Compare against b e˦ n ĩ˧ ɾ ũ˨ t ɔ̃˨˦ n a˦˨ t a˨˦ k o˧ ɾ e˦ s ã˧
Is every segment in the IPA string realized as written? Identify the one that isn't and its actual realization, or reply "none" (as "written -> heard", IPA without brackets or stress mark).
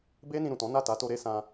k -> t